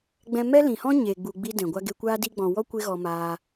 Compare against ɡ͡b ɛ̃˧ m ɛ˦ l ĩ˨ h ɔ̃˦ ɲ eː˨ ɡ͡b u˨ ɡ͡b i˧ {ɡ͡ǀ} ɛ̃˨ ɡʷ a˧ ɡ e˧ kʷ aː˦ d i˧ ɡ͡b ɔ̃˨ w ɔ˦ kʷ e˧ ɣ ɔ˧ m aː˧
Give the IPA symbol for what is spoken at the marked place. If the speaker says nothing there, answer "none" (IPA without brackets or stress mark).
d